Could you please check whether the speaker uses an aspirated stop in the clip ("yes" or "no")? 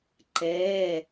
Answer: no